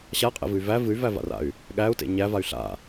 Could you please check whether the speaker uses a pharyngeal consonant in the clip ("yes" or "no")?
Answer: no